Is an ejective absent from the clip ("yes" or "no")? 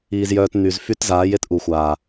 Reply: yes